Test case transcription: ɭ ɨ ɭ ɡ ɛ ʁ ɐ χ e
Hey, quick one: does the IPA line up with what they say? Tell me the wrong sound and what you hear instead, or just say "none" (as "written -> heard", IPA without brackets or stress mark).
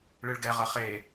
none